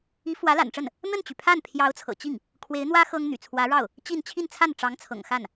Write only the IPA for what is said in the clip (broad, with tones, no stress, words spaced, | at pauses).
i˧˥fwä˧˥la̰˨˩nʈ͡ʂə˥˩n | n̪ə˥˩nt͡ɕy˩pʰa˥˩n pʰjɑ˧˥ʊ̯t͡sʰɤ̰˨˩t͡ɕi˥˩ŋ | kʰwe˧˥ɪ̯n̪wä˥ xɤ˥ŋn̪y̰˨˩ t͡sʰwä˧˥ɻɑ˥˩ʊ̯ | t͡ɕi˥˧n t͡ɕʰi˥˧nt͡sʰa˥˩n ʈ͡ʂɑ˧˥ŋt͡sʰɤ̰˨˩ŋxa˥˩n